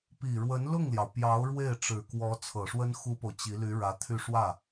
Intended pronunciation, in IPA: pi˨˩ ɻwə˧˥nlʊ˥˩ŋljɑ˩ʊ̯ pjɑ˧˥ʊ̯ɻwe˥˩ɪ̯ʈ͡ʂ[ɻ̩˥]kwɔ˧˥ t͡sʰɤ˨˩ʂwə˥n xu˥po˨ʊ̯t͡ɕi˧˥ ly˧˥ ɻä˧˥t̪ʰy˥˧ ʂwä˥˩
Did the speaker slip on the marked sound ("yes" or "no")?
yes